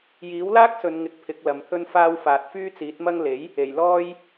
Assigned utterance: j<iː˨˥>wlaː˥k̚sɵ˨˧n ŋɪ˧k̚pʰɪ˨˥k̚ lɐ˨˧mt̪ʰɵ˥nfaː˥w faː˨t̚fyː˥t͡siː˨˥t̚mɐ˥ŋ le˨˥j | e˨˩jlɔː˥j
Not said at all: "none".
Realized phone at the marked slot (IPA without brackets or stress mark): iː˨˥